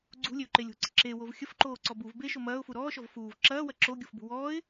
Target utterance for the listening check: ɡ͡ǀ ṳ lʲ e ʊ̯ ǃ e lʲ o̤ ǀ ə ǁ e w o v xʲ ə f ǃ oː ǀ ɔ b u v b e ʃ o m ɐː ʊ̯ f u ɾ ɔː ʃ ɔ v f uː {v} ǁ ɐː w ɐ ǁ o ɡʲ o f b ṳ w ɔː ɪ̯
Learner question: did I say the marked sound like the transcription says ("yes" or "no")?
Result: yes